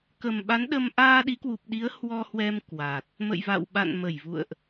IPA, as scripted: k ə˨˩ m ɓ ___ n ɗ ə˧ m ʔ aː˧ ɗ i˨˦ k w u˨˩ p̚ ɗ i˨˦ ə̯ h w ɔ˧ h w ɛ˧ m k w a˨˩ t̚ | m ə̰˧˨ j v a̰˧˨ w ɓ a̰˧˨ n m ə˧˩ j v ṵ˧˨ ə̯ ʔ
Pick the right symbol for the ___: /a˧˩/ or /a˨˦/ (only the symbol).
a˨˦